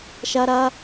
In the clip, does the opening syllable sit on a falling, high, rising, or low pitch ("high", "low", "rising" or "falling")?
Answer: high